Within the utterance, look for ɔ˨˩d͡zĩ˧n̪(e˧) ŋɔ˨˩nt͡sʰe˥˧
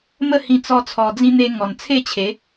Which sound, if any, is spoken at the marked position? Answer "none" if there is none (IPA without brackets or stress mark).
e˧